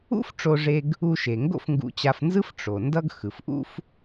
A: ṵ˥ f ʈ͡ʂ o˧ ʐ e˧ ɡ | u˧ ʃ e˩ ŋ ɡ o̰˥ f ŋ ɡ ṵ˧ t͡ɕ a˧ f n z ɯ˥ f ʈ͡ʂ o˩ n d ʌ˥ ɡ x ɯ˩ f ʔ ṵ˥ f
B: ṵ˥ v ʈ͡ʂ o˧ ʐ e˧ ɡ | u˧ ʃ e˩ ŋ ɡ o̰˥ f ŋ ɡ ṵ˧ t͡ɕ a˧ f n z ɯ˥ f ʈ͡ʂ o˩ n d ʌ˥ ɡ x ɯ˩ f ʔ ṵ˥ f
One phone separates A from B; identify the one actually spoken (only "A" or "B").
A